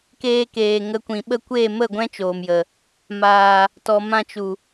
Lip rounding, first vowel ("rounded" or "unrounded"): unrounded